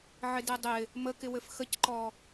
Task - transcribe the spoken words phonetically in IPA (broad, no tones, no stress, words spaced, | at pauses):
ʕɪdedˤɪ | məkɪwɘf xəcǃɔ